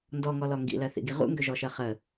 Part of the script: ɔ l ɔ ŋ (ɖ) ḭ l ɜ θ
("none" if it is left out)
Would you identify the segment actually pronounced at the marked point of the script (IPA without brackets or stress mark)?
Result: ɡ